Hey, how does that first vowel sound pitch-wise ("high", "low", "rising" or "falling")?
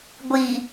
low